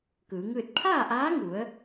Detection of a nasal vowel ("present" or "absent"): absent